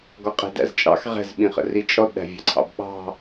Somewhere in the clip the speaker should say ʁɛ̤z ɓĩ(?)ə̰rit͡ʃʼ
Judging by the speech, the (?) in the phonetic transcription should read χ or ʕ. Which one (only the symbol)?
χ